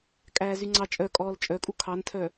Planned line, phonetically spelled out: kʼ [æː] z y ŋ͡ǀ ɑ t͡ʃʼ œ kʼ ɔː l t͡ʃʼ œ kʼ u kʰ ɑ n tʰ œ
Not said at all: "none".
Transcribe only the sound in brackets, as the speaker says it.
æː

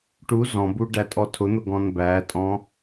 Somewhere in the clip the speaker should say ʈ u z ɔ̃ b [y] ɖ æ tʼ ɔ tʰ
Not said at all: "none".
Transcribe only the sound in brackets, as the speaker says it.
u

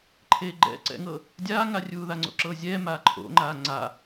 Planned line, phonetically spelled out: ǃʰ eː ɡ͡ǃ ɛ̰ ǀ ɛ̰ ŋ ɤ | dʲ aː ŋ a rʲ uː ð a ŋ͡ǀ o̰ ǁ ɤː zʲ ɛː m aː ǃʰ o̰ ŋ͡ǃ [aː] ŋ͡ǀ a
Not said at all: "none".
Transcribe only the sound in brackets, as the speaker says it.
aː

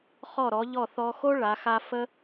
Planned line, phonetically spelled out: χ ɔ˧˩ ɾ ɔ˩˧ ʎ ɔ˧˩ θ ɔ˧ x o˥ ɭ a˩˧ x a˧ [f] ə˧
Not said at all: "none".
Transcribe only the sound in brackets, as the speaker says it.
f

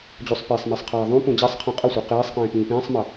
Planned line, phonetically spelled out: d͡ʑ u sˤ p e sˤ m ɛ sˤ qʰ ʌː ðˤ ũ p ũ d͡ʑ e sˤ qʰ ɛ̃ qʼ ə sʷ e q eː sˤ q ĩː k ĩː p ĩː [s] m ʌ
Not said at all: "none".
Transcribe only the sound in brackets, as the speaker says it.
sˤ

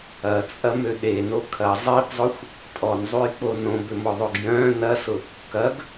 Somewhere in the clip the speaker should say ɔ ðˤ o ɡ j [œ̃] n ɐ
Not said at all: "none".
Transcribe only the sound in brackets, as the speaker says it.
œ̃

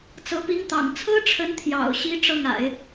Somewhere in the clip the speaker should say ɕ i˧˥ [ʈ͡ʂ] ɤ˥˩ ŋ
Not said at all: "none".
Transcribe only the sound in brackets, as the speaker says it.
ʈ͡ʂ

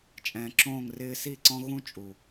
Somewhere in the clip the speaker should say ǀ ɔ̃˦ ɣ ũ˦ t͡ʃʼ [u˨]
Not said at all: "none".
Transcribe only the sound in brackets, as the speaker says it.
u˨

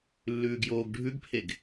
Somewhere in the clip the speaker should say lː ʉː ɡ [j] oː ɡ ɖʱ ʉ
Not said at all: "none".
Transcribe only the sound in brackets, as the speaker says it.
j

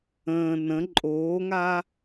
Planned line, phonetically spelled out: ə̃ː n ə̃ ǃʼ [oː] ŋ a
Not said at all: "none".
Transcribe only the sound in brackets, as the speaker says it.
oː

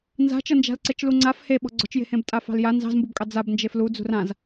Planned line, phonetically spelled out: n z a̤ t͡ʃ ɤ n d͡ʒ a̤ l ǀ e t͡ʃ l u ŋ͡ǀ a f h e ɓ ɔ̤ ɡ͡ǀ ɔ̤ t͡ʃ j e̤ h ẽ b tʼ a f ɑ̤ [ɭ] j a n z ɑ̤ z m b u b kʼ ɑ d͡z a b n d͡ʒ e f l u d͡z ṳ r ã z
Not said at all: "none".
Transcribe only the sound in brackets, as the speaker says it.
l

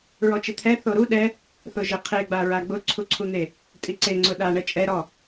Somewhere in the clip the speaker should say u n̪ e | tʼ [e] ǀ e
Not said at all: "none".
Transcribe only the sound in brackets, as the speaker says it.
i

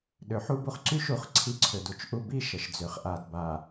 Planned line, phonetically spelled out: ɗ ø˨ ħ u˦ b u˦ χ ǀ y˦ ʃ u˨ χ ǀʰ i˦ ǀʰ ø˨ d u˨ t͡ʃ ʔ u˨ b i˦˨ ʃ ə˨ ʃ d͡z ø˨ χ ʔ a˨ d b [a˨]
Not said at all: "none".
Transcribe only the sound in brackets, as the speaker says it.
a˨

